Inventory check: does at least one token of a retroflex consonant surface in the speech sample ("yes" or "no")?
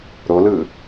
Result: no